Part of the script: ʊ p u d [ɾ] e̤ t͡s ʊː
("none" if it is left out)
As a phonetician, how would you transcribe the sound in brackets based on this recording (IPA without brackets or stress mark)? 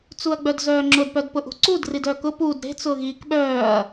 ɾ